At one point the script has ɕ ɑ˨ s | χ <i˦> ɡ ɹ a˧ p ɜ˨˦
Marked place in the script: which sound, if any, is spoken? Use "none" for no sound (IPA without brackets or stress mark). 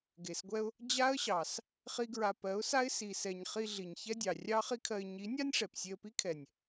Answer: i˦